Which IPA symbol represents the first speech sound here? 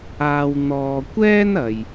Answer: aː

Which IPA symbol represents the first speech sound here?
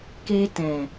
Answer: k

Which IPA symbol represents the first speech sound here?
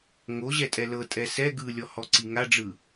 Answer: ŋ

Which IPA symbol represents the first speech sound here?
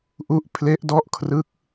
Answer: ʔ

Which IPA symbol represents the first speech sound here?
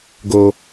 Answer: ɡ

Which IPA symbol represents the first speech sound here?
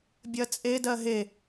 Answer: bʲ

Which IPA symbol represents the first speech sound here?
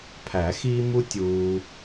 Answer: pʰ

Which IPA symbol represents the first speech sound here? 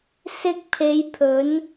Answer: s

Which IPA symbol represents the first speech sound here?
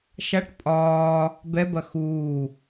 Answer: ʃ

